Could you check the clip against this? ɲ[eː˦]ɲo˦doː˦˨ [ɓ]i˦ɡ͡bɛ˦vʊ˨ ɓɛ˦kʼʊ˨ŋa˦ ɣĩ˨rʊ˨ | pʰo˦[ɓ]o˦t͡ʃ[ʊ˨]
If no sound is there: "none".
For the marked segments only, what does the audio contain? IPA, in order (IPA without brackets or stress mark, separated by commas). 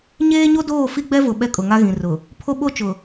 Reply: eː˦, f, ɓ, ʊ˨